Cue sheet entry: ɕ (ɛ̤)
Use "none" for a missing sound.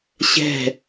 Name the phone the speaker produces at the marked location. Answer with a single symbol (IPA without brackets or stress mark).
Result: ɛ̤